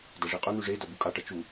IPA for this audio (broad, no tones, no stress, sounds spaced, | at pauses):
d ɐ ʐ e qʼ ɵ n̪ ʉ ʐ e d ɐ b u kʼ a ʈ ɐ t͡ʃ u